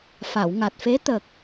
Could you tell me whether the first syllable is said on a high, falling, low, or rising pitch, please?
low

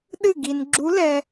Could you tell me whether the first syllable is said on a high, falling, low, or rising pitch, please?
falling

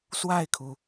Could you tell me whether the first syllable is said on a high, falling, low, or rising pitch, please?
falling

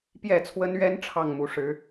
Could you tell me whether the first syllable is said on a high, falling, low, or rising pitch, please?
falling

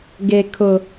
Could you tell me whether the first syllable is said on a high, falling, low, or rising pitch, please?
high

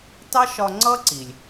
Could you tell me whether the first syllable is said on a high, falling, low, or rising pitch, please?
high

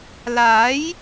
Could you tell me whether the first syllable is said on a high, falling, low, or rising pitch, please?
rising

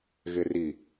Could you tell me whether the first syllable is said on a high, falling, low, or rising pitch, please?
low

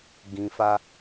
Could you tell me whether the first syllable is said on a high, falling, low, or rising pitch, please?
low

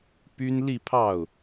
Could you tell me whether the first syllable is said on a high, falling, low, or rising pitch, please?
high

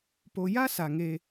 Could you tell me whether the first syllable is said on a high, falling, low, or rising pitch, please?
high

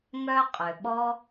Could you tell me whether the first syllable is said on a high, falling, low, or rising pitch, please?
high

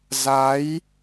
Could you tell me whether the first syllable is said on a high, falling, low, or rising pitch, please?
rising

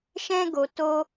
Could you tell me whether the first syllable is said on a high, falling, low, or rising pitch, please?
high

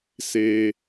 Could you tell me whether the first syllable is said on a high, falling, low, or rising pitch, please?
high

